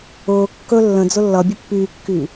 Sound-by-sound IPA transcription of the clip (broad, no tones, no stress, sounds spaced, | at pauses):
ʊː kː ɵ lː ə̃ d͡z ʊ lː ʌ bʲ ʊ pː yː kː yː